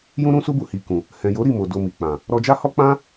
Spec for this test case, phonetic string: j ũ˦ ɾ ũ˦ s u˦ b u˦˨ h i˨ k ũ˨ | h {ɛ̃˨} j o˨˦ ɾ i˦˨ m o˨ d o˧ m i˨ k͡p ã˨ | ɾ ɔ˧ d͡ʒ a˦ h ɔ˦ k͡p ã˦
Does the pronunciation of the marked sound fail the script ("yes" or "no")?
no